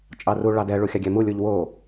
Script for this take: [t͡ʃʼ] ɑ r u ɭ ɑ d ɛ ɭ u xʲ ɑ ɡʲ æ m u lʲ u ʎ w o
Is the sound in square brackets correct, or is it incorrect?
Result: correct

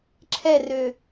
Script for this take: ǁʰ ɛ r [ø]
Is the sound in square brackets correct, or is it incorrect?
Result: correct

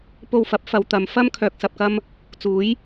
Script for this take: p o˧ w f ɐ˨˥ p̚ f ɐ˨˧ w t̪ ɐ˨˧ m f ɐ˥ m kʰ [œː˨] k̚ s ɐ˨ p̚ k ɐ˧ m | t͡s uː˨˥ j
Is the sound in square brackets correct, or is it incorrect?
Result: correct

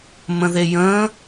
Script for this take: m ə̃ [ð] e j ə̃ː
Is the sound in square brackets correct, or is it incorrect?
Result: correct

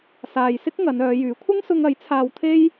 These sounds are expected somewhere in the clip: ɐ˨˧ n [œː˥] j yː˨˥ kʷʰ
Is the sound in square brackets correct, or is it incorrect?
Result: incorrect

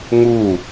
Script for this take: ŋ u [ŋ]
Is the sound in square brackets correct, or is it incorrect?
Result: incorrect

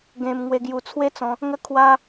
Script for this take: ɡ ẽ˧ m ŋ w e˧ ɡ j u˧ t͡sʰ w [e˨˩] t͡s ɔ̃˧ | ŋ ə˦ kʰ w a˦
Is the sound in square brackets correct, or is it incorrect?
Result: incorrect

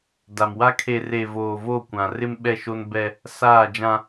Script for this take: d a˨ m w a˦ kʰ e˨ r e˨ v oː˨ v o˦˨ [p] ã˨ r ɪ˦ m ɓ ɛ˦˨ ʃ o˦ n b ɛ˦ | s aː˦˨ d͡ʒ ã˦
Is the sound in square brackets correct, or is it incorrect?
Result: incorrect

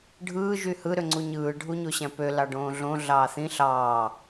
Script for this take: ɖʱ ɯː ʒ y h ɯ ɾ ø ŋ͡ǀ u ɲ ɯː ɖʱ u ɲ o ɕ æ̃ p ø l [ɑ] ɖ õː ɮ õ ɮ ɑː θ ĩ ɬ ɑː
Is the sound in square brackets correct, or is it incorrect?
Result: correct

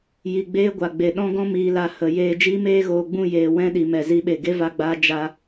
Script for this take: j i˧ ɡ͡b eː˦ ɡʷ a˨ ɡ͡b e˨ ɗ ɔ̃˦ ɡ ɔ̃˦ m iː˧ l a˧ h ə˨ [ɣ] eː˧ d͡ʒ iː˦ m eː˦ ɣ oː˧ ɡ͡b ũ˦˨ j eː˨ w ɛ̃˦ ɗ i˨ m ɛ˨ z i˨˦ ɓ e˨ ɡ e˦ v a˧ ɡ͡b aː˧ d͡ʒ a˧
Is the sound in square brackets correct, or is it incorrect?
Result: incorrect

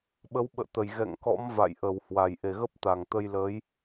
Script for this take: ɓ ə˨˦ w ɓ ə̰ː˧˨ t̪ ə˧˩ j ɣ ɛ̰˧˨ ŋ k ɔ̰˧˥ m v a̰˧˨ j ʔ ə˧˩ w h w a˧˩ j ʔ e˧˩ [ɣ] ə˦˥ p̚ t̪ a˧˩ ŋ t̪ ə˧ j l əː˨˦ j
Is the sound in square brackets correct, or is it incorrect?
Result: correct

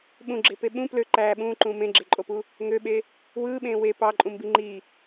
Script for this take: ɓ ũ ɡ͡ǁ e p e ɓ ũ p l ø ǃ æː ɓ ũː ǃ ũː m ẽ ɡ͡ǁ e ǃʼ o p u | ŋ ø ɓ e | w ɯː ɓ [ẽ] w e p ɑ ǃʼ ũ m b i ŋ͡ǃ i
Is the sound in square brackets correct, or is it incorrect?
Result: incorrect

